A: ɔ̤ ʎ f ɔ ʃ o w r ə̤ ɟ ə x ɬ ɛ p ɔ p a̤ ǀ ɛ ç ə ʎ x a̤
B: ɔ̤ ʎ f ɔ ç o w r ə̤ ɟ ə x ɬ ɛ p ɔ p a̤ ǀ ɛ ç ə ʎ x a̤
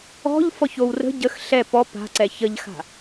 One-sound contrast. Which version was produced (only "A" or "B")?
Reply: B